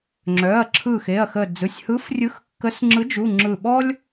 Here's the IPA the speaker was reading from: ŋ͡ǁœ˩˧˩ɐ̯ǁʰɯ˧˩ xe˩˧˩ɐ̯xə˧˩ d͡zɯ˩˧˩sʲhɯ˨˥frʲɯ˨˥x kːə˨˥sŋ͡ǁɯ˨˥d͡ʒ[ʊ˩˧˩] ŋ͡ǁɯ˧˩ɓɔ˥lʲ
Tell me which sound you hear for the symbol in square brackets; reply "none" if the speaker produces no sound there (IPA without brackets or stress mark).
u˩˧˩